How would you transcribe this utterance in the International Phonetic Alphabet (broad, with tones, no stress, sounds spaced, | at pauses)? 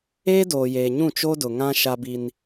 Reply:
eː˦ d oː˨ j eː˨ ɲ ũ˦˨ t͡ʃ o˦ d ʊ˨ ŋ ã˦ ʃ a˦ b i˦ n